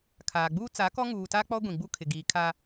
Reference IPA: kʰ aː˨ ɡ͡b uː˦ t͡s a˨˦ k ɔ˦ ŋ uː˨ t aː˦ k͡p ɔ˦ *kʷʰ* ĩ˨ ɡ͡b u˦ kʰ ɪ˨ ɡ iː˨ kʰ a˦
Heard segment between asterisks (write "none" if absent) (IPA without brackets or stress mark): ɡʷ